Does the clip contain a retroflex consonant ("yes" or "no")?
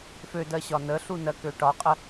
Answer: yes